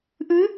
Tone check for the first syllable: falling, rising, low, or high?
rising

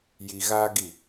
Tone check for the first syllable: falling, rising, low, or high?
low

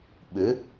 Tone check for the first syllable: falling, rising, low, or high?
rising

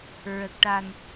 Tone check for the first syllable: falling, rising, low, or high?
low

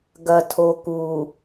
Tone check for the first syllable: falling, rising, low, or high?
low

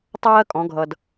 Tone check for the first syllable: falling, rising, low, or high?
high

